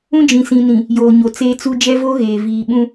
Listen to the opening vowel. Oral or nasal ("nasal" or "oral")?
nasal